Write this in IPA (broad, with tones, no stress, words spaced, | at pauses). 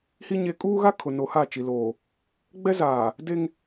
hi˦ ɲe˦ kʼuː˦ɣa˦ kʰʊ˨no˨˦ha˦˨t͡ʃi˨ loː˨ | ɡ͡bɛ˦zaː˨ | de˦ŋ